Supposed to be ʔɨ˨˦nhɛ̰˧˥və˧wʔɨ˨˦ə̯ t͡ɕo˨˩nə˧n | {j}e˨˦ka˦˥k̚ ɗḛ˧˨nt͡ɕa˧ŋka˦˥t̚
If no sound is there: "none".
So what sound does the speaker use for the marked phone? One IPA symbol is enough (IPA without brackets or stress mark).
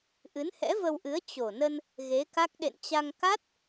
ɣ